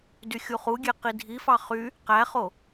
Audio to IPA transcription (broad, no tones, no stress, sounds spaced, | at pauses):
d y xʲ u χ u ɡʲ e q i dʱ i f ɑ χ y | q æ χ o